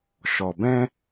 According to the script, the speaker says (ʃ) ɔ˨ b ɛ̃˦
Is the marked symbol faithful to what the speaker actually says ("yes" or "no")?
yes